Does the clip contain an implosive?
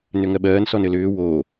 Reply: yes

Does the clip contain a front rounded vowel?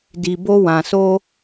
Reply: no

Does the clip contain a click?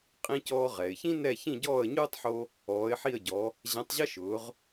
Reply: no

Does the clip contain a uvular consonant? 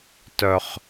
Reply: yes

